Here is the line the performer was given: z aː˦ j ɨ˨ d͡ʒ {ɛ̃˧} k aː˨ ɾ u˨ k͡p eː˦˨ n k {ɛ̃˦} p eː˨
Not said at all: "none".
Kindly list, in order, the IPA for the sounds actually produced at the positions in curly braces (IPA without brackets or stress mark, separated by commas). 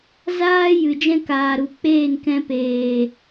ɛ̃˦, ɛ̃˧